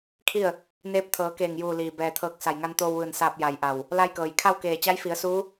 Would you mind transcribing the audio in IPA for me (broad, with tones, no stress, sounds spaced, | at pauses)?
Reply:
kʰ i˥˨ ə̯ | n eː˧ p̚ t̪ʰ ɤː˩˧ k eː˧˩ ŋ j uː˧˩ l iː˩ b ɛː˩ t̪ʰ ɤː˧˩ k̚ s a˧˩ j ŋ a˧ n t̪ oː˧ w ʋ ɯː˧˩ n s aː˧ p̚ j a˩ j ʔ a˧˩ w | l a˧ j k ɤː˩ j kʰ a˥˨ w k eː˧˩ t͡ɕ a˧˥ j f i˩˧ ə̯ s uː˧˥